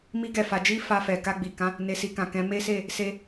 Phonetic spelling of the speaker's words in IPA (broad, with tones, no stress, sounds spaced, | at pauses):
m i˦ ɡ ɛ˦˨ f a˧ d͡ʒ i˦ f a˧ f ɛ˨ k a˧ ɡ͡b i˨ k ã˨˦ | n e˨ s i˨ k ã˨ k ɛ̃˨˦ m e˦ s e˦˨ | s e˧